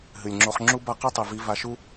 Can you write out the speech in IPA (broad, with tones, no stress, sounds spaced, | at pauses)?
ɦ ɨ˨ lʲ ŋ͡ǁ o˧ χ ŋ͡ǁ u˦ b a˦ q u˦ tˤ i˨ v i˧ v a˧ ʃ u˦